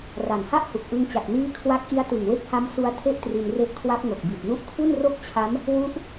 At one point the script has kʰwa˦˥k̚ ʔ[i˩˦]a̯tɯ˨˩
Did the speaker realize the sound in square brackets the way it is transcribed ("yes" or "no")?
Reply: no